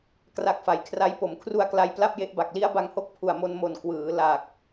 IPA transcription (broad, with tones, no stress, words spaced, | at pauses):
kra˦˥k̚fa˩˦j kʰra˧j po˩˦mkʰru˧a̯kla˧j pla˥˩p̚je˦˥ʔba˨˩k̚ li˦˥a̯ba˧ŋho˦˥k̚ pʰu˨˩a̯mo˧nmo˨˩n kwɯː˩˦ la˨˩k̚